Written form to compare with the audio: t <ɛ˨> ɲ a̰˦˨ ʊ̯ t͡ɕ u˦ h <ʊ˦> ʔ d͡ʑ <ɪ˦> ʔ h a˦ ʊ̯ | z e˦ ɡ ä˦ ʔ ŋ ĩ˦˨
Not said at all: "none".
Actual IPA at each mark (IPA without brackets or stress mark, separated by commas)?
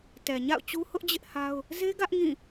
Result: ɛ˨, ʊ˦, ɪ˦